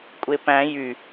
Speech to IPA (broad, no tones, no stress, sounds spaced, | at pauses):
kʷʼ e p æ̃ j y